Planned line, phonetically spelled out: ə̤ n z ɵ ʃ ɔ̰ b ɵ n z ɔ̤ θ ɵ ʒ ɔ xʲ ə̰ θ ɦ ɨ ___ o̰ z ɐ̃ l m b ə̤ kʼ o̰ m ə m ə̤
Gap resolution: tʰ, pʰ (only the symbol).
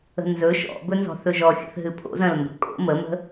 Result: pʰ